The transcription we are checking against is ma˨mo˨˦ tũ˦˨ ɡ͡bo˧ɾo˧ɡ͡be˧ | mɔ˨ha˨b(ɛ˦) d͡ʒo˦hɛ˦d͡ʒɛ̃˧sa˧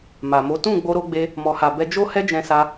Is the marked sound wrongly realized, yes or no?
yes